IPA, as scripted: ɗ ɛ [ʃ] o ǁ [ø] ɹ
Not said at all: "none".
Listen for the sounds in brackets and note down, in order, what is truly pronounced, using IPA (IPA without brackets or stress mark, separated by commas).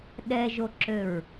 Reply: ʒ, ø